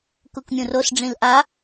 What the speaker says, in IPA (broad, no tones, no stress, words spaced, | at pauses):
kukmʲũrosɖ͡ʐĩl ʔa